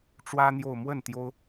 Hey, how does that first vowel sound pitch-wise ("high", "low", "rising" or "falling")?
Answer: high